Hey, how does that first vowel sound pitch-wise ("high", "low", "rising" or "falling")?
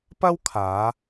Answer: high